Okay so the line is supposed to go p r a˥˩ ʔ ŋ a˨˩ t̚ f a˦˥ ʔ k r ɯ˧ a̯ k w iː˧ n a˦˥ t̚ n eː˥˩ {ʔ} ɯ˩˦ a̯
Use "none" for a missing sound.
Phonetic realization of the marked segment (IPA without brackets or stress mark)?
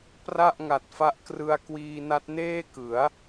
k